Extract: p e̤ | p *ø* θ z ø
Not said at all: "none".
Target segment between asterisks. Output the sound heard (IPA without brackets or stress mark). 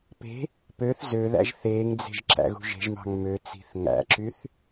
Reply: ø